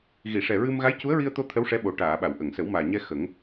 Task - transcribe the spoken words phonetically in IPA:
ɣ i˨˩˨ ʂ ɛ˨˩ ɹ ɨ˧ m ɣ a˧˥ j c u˧˥ ə̯ ɹ i˧ ə̯ t̪ o˧ t̪ʰ ə˧˥ w ʂ ɛ˧˥ ɓ o˨˩ ʈ aː˨˩˨ ɓ a˨˩˨ w ʔ ə˨˩˨ ŋ s ə˨˩˦ w m aː˨˩ ɲ ɛ˧ x ə˨˩˦ ŋ

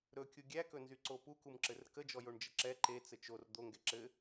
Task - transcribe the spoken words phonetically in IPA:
ɾ ɵ kʲ u ɡʲ æ k ɵ n z y ǀ o p u k u m ǁ ɘ r k ə d͡ʒ ɔ j o ɳ d͡ʒ ə ǁ ɛ ǃ e t͡s ɘ t͡ʃ o r d̪ o ŋ ɡ ɛ ǁ ɘ

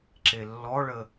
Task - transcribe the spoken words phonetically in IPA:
ǁ e lː ɔ ɭ ə

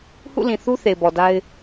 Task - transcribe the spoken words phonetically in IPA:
h ṵ˦˨ l ĩ˨ θ u˦ θ e˨ ɪ̯ b ɔ˨ d a˦ ɪ̯

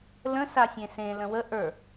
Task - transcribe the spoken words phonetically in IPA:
l ə̃ s a sʲ ẽ s ẽ l ə̃ w ə ʔ ə˞

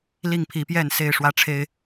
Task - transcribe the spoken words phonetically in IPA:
l i˥˨ ŋ pʰ i˨˦ p j ɛ˥˨ n s e˥˨ ɪ̯ ʂ w ä˥˨ ʈ͡ʂʰ e˦ ɪ̯

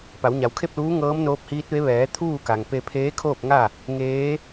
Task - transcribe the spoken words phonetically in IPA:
p a˩˧ w ɲ a˩˧ w kʰ e˥˨ p̚ l uː˧˥ ŋ ɤː˧˥ m n oː˧˥ p̚ h iː˧˥ t̚ ʋ e˧˥ ʋ ɛː˩˧ t̪ʰ uː˥˨ k a˩ ŋ p e˧ pʰ eː˧˥ kʰ oː˥˨ p̚ ŋ a˥˨ | ŋ eː˧˥

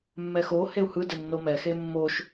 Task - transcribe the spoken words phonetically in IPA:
mː ɛ x o h e u̯ h ɯ d ɛ nː o m ɛ x e mː o ʃ

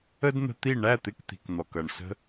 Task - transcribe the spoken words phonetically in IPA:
ə˦ d n̪ ə̤˧ t̪ i˦˨ ɳ æ˦˨ t̪ ɪ˧ k t̪ i̤˨ k n̪ ɔ˨ k ʌ˨ ɳ s ə̤˦

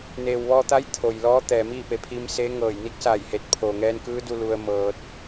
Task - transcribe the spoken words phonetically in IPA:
n eː˩ w ʋ ɔː˧ t̪ a˧˥ j t̪ʰ o˩ j l ɔː˧˥ t̪ ɛː˩ m iː˥˨ p e˩ pʰ i˧ m s e˧˥ ŋ ɤː˧˩ j n i˧˥ k̚ s a˧˩ j h e˧˩ t̚ pʰ oː˩ ŋ ɛː˧ n k ɯː˧˥ d u˧ l u˧ ə̯ m ɤː˧ t̚

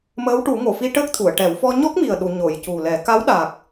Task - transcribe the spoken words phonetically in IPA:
m əː˧˥ w ʈ u˨˩˦ ŋ o˨˩˨ f i˧ ʈ əː˦˥ k̚ t̪ʰ u˨˩˨ ə̯ ʈ ɛ˨˩˦ w f ɔ˧ ɲ ɔ˦˥ k̚ m i˨˩ ə̯ ɗ u˨˩˨ ɲ o˨˩˨ j c u˨˩ l ɛ˨˩˦ k a˧˥ w ɗ a˨˩ k̚

